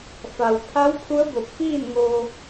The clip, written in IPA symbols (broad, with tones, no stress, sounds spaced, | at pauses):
f a˩ w pʰ a˧˥ w pʰ u˧˥ ə̯ b o˧˩ p̚ f iː˥˨ n ŋ oː˧